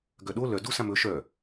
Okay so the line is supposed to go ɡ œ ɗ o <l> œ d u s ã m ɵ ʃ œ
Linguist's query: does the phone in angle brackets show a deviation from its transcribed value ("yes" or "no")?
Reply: no